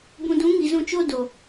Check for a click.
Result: absent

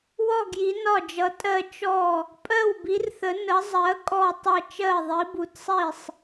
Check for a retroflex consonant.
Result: absent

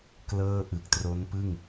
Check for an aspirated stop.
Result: absent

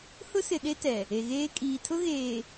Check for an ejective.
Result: present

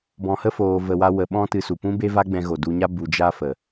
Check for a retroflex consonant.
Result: absent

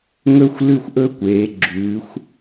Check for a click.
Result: present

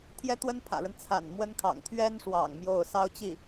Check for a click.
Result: absent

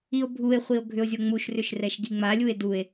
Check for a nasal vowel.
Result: absent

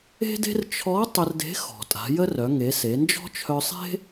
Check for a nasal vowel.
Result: absent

